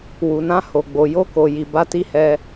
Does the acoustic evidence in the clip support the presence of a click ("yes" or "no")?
no